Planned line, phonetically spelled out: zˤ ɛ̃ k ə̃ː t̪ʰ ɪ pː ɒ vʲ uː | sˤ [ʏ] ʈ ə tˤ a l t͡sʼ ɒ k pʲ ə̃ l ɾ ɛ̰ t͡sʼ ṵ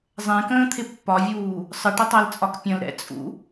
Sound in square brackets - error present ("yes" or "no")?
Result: yes